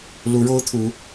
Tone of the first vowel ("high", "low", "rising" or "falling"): rising